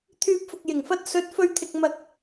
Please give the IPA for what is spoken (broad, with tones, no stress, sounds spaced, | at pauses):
t̪ʰ yː˧ p̚ f ʊ˨ k̚ j ɪ˨˩ ŋ f ɐ˧ t̚ s ɵ˨˥ t̚ f ɵ˧ ɥ t̪ʰ ɪ˨ k̚ m ɐ˨ k̚